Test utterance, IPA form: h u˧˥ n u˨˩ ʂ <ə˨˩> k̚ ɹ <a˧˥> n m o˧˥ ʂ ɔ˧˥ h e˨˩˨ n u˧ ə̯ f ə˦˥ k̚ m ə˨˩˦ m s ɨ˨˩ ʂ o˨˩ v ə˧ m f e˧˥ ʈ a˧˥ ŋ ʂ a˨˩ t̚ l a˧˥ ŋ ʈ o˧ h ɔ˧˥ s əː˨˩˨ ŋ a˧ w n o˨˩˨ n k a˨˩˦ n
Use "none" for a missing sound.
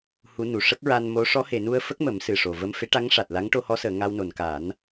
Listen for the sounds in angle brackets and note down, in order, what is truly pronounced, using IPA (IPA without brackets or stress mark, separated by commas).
ə˦˥, a˧